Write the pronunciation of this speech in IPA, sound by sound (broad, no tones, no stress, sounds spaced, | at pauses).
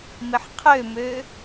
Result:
m ɪ ħ qʰ ø m ø